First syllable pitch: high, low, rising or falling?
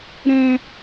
high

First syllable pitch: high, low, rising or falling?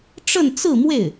falling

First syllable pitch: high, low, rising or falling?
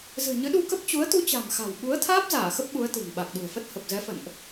low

